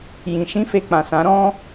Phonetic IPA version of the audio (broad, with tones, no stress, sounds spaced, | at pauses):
j ĩ˨ ʃ ĩ˧ f e˨ k͡p ã˨ s ã˨˦ ɾ ɔ̃˦